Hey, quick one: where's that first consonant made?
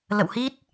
tongue tip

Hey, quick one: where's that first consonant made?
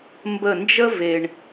lips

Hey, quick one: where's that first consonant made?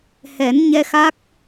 throat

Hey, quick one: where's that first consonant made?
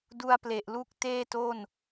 tongue tip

